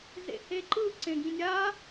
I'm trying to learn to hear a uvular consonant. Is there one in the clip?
no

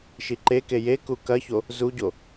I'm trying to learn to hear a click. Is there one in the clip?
yes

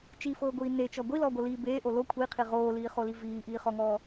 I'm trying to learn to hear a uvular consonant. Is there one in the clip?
yes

